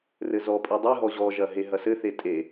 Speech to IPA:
r ɘ z ɔ pʼ i dˤ i ɦ ɔ ʑ ɔ ʒ ɐ ɦ e ɦ ɐ s ɘ θ e tʼ e

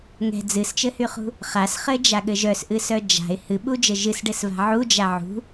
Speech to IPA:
ŋ ɛ̤ d͡z ɨ s t͡ʃ ɘ h y χ ṳ | χ a s χ ɘ d͡ʒ a ɠ ɘ ʒ œ s ʔ ɨ s œ d͡ʒ a̤ ɪ̯ h ɨ ɓ u d͡ʒ ɘ ʒ ɨ s ɖ ɘ s v a̤ ʕ u d͡ʒ a ʕ ṳ

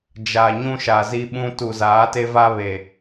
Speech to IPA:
d͡ʒ a˨ ɲ ũ˦ ʃ a˨ z i˦ ɓ ũ˦ t u˨ z aː˨˦ t e˦ v a˦ β e˨

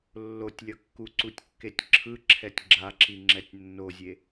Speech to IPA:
lː o tʲ lʲ ʌ kː u ǀ u tʲ kː e tʲ ǁʰ ɯ ǁʰ ɛ tʲ ɡ͡ǁ a ǁ i ŋ͡ǁ ɛ tʲ nː o zʲ e

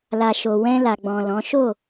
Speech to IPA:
l a˨ ʃ o˨ w ɛ̃˧ l a˨ ɡ͡b ɔ̃˨ l ɔ̃˨˦ ʃ o˦˨

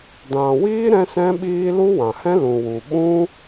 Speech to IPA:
d ã˨ w iː˦ ɾ ɛ̃˦ s ɛ̃˦ ɓ iː˦ l u˦ w ã˨ h ɛ̃˦ l ũ˨ w u˨ ɓ ũ˦

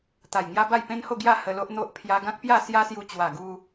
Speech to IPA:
t̪ a˨˩ j ŋ j a˦ b a˥˧ j p ẽ˦ n h o˥˧ ɡ j a˥˧ h ə˧ l o˦ ʔ n̪ o˦ ʔ pʰ j a˧ ɡ ã˦ k̚ p j a˥˧ s j a˦ s j u˧ t͡ɕ w a˨˩ ɡ u˧

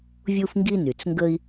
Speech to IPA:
vʲ u˥ f ŋ ɡ i˥ n y˩ t͡s ŋ ɡ ə˥ i̯

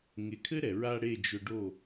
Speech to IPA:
ŋ e˨ kʰ ɘ˦ ɾ ɛ˨ ɹ a˧ ɽ e˦˨ d͡ʒ ɵ˧ ɖ o˦˨

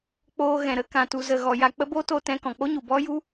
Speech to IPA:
k͡p oː˧ ɣ ɛ̃˨ ɾ ə˧ k ã˨ t u˨ z ə˨ ɣ ɔ˨ j a˧ k͡p ə˦ b o˦ t o˧ t ɛ̃˧ k ɔ̃˨ k͡p o˦ ɲ u˨ b ɔ˦ j u˦

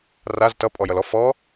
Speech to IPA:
r a z t ʌ pʼ ɔ j ʌ l ɔ f ɔ

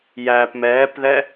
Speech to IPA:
j æ p m ɛː p ð ɛ

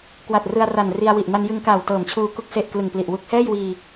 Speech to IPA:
k w a˨˩ t̚ r ɯ˧ a̯ r a˨˩ n r i˧ a̯ w i˨˩ ʔ n a˧ n j ɯ˧ ŋ k aː˨˩ w t ɤː˨˩ m t͡ɕʰ uː˧ k u˦˥ k̚ s e˨˩ ʔ k l ɯ˨˩ ŋ p l i˨˩ ʔ w u˦˥ k̚ h ɛː˥˩ j w iː˧

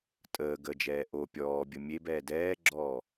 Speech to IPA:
tʼ əː ɡ ə d͡ʒ ɛː ʔ o pʲ ɔː bʲ ə mʲ e b ɛː d ɛː ɡ͡ǁ ɔː

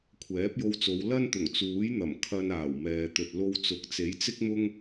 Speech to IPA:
kʷʰ ɛː˨˥ p̚ j o˧ w t͡s o˨˧ w l ɐ˥ n t̪ ʊ˨˩ ŋ t͡s uː˨˥ j n̪ ɐ˨˩ m kʰ ɐ˧ n aː˨˩ w m ɛː˨ t̪ ɵ˨ t̚ l o˧ w t͡s ʊ˨˥ k̚ t͡s e˨˥ j t͡s ɪ˥ k̚ m ʊ˥ ŋ

